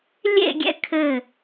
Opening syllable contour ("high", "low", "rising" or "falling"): falling